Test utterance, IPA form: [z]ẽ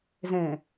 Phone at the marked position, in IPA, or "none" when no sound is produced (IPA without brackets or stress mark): z